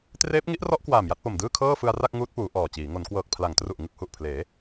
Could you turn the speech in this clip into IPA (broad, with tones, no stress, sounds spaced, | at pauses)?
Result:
t r eː˦˥ p̚ ŋ i˦˥ ʔ r ɔ˦˥ ʔ k w aː˨˩ m j a˥˩ t̚ p o˨˩ m d ɯː˥˩ kʰ ɤː˥˩ f ɯ˧ a̯ r a˥˩ k̚ ŋ uː˦˥ t̚ p uː˩˦ ʔ ɔː˨˩ t͡ɕ iː˩˦ ŋ o˩˦ n k w ɤː˨˩ k̚ pʰ l a˩˦ ŋ t r u˨˩ ʔ ŋ ɯ˥˩ k̚ h u˨˩ ʔ pʰ l eː˩˦